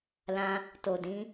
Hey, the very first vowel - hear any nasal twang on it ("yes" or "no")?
yes